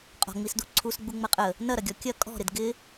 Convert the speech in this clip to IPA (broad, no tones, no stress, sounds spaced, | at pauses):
qʼ ɔ̤ ŋ͡m i s d u ǀʰ u s ɡ͡b u ŋ͡m ɐ qʼ ə | n ɐ ɾ ɐ ɡʲ ɔ kʲ ɐ kʼ ɔ̤ ɾ ɪ d ɡ ɪ